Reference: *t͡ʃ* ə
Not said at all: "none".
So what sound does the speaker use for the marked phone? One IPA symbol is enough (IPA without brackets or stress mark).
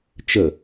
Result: t͡ʃ